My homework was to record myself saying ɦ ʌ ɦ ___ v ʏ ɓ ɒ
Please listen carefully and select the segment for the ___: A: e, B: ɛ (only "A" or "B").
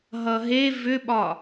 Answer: A